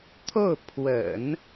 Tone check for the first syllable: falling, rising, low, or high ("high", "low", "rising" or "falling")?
falling